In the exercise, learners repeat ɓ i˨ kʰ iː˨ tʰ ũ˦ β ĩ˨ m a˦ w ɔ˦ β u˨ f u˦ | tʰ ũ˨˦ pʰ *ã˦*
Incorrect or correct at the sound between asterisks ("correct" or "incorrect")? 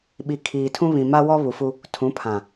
incorrect